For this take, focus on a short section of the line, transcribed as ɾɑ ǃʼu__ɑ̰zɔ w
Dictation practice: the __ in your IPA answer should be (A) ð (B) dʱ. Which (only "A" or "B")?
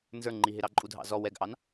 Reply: B